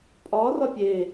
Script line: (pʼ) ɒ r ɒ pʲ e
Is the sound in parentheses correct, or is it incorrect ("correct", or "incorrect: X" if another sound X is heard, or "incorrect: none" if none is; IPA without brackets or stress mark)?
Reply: correct